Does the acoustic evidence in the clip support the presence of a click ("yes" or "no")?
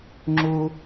yes